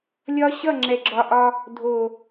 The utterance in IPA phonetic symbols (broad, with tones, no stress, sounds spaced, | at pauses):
lʲ ɒ˦ ɕ ʌ˦˨ ŋ͡ǁ ɛ˨ ɡ͡ǁ ɒ˨ ʔ ɒ˦ | dʱ o˨